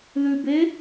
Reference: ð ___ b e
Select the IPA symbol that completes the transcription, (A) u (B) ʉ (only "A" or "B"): B